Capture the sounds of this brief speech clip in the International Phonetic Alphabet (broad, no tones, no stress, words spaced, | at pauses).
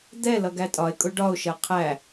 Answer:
d̪ɛlʌ ɡætʼɒe̯kʼʊ ɖɒo̯ʃɜ qʰæ